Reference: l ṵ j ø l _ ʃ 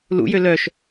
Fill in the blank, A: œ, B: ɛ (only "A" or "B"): A